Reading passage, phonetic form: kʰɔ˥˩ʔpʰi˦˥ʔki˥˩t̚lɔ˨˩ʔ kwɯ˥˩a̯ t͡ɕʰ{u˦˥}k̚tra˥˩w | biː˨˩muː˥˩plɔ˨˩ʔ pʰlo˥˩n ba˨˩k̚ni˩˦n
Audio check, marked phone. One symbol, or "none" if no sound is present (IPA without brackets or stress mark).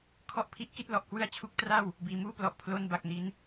u˦˥